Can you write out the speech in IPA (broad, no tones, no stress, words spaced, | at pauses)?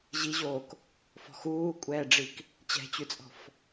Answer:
ʑiʑoːk | fɔ̤xuːkʷʼɛːɖ͡ʐik | t͡ɕɛ̤t͡ɕʉt͡sʼɔ̤f